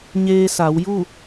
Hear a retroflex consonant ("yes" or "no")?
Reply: no